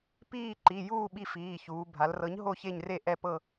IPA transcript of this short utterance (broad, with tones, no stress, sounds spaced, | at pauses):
p iː˥˧ ǃ i˩˧˩ j uː˥˧ ɓ i˥˧ f iː˩˧˩ ç uː˩˧ bʱ a˩˧ l r ɤ˨˥ ɲ ɦ o˥˧ ç e˥˧ ɲ r e˥˧ ʔ ɛ˥˧ p ɤ˥˧